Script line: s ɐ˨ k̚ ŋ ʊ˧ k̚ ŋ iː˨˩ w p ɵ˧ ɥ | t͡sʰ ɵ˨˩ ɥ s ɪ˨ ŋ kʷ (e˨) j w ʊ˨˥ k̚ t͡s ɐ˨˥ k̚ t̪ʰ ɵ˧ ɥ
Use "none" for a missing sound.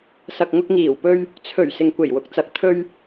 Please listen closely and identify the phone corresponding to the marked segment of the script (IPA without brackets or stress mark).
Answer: e˨˩